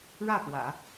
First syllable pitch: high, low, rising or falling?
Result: falling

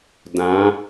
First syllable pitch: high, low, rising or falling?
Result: rising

